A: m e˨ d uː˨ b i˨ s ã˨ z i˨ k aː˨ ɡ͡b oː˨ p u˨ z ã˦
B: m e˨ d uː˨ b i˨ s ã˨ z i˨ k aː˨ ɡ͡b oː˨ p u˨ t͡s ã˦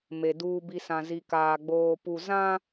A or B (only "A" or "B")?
A